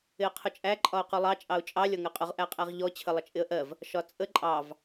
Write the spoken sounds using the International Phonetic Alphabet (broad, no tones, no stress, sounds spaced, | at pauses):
ɪ ə̯ qʰ ʊ t͡ʃʼ æ ǃʼ ɒ ʊ̯ q u lˠ ɑ t͡ʃʼ ɑ ʊ̯ t͡ʃʼ ɑ lʲ ɒ ŋ ɜ qʼ ʊ ʁ ʔ æ qʼ æ ʁ ʎ ɔ t͡ɕʰ ə lˠ ə t͡ʃʼ ɪ ə̯ ʔ ɜ v | ʃ ɒ t͡sʼ ə ǃʼ ɑ v